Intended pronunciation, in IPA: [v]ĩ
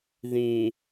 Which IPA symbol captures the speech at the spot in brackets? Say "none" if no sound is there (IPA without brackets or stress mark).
ð